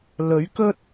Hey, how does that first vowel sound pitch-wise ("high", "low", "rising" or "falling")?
rising